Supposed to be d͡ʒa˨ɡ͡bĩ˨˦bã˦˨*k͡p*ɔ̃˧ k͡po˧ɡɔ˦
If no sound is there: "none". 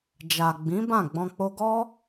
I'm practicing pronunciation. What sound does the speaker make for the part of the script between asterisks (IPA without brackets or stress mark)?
ɡ͡b